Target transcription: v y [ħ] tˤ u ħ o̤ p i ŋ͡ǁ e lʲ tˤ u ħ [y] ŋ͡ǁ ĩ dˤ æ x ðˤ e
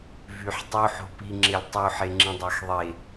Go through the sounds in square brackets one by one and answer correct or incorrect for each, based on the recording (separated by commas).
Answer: correct, incorrect